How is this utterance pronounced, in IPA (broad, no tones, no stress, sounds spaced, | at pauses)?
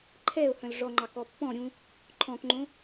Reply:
ǃʰ ɛː ʊ̯ h œ̃ l ʐ ɔ ŋ͡ǃ ɑ k ɔ pː ɔ̃ ɾʲ ũ | ǃʰ ɔ̃ k ŋ͡ǃ õ